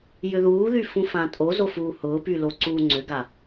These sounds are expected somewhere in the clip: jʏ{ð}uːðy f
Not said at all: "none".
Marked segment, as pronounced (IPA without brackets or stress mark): ð